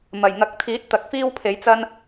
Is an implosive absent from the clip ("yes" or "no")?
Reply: yes